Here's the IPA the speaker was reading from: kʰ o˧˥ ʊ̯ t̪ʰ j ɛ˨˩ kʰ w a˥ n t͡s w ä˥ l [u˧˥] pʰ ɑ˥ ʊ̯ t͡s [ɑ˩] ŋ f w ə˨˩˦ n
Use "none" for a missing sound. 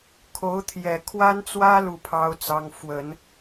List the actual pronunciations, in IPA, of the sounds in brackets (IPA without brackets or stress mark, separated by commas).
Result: u˥˩, ɑ˥